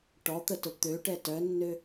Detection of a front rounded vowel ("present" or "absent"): present